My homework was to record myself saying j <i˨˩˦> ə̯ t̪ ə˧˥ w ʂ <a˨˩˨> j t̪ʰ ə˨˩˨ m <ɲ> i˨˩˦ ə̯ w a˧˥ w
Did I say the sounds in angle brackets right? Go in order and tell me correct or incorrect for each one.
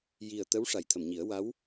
incorrect: i˨˩, correct, correct

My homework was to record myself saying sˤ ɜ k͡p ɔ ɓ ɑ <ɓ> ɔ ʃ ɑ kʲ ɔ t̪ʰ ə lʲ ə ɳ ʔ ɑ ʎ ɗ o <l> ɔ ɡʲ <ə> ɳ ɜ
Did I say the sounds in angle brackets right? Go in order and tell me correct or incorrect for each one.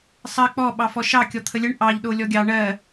incorrect: f, incorrect: lʲ, incorrect: ɑ

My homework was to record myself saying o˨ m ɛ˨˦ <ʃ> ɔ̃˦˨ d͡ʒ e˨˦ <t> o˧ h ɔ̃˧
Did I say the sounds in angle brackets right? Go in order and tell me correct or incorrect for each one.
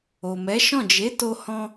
correct, correct

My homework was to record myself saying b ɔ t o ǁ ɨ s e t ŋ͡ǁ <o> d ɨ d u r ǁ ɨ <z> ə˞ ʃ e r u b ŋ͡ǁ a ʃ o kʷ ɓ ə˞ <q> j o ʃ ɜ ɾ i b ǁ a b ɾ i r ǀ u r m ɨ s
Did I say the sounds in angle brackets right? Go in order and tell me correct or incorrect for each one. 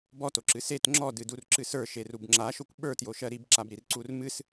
incorrect: ɔ, incorrect: s, incorrect: t

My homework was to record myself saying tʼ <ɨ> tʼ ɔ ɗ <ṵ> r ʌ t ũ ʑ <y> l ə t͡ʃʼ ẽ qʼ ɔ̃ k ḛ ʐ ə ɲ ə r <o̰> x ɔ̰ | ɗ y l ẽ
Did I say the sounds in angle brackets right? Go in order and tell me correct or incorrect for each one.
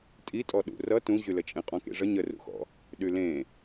incorrect: i, correct, correct, incorrect: ṵ

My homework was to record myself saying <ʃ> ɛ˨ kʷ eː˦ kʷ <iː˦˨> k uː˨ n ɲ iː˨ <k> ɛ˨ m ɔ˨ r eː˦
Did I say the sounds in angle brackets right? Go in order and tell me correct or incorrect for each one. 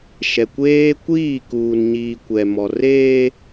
correct, correct, incorrect: kʷ

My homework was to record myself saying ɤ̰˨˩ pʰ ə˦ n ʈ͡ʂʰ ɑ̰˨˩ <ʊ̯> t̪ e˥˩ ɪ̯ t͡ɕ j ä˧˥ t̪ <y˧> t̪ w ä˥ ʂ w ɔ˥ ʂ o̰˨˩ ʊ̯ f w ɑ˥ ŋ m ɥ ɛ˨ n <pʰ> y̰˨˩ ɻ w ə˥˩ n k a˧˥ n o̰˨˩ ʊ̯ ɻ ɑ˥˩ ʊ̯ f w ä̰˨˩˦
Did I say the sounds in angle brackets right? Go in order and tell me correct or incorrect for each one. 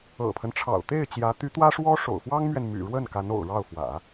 correct, incorrect: y˧˥, incorrect: m

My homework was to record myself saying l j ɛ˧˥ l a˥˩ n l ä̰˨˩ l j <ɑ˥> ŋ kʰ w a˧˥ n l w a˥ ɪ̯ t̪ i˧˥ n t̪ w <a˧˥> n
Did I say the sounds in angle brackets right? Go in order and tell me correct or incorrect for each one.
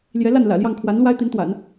incorrect: ɑ˥˩, incorrect: a̰˨˩˦

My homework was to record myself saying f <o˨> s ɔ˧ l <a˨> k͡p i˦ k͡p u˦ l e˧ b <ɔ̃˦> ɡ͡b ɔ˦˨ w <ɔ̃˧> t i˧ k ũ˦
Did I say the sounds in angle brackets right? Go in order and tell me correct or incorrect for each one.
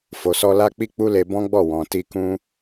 correct, incorrect: a˦, correct, incorrect: ɔ̃˨

